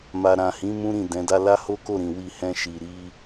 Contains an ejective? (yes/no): no